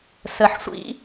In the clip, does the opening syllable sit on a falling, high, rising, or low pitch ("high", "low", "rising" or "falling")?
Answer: low